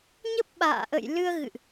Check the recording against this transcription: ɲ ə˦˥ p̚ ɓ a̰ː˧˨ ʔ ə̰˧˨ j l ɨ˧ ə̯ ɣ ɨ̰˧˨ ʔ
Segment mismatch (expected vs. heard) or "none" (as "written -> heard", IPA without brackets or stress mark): none